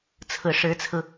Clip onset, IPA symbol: t͡sʰ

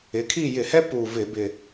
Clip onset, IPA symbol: ɪ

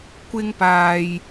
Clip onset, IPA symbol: kʷ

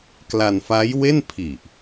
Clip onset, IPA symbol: k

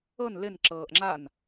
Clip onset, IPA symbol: ɤ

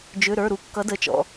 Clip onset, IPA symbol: d͡ʒ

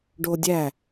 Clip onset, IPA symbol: ɖ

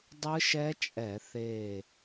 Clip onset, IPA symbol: dˤ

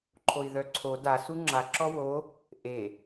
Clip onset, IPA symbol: ǃʰ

